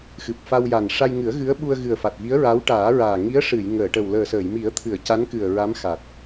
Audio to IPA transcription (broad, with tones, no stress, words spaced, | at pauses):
xɨ˨˩p̚fa˧wja˨˩n ʂa˧jŋɨ˨˩˦ə̯ ɣɨ˧˥ə̯ɓu˧ə̯ ɣɨ˨˩ə̯fa˨˩t̚vi˧˥ə̯ ɹa˧˥wʈaː˨˩˦ɹaː˨˩ ŋi˧˥ə̯ʂɨ˨˩˨j ŋəː˨˩˨ʈə˨˩w ləː˨˩səː˨˩˨jmi˨˩˦ə̯t̪ʰɨ˨˩˨ə̯ ca˧˥nkɨ˨˩ə̯ɹa˧˥m xa˨˩t̚